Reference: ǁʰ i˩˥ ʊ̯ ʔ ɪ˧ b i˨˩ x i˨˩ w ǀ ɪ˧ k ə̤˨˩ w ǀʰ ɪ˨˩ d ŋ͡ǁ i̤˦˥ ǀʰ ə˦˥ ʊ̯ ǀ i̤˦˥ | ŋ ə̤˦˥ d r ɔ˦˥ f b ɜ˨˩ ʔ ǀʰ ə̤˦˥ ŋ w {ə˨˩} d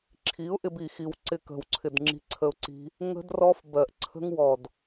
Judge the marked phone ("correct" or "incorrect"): incorrect